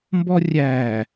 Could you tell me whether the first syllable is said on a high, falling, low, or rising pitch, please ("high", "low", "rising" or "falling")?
high